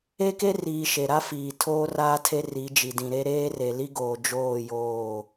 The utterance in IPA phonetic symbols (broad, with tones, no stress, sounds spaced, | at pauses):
e˦ k e˦ r iː˨ ʃ e˨ ɾ a˦ f iː˨ tʰ oː˦ r aː˦ tʰ e˦ r i˨˦ d͡ʒ i˨ d ĩ˨ ɾ e˦ ɾ eː˦ r e˨ l i˦ ɡ oː˨ d͡ʒ oː˦˨ j oː˦˨